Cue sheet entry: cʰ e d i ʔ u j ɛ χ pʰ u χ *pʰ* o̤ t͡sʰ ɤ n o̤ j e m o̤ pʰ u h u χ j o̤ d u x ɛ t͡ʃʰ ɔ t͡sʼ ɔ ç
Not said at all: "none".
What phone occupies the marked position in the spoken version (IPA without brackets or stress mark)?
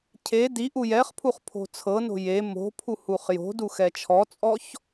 pʰ